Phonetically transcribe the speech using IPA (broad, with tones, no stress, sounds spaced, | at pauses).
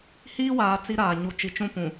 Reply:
h iː˦ w aː˨ t͡s i˦ ɾ aː˨ ɲ u˨ t͡ʃ i˨ t͡ʃ ũ˦ p ũ˨